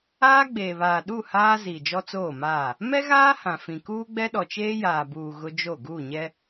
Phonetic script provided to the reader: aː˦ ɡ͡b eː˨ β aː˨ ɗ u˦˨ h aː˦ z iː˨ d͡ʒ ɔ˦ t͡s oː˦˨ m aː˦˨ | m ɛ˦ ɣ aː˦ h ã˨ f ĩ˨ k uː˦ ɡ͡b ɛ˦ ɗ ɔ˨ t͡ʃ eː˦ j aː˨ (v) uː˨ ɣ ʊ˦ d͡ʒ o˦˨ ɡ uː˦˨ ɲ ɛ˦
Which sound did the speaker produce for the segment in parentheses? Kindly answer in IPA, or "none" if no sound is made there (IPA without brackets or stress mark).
b